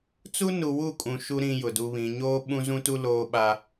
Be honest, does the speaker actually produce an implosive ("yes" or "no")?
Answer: yes